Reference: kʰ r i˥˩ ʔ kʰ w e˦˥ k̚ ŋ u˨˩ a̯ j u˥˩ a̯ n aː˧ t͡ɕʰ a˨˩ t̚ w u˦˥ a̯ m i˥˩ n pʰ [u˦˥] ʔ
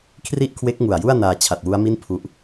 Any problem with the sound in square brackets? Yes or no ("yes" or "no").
no